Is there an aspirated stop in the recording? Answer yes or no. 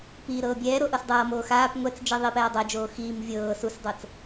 no